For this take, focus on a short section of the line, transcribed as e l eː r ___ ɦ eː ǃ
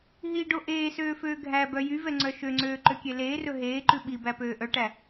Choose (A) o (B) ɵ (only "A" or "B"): B